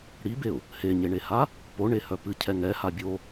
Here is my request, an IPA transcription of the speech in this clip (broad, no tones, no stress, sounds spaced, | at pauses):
ɽ i b e ʊ̯ | h e ɲ e ɳ e h a | p o ɳ e h œ p ɨ cʰ ɛ ŋ ɛ h a bʲ o